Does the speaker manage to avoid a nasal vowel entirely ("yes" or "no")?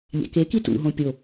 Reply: no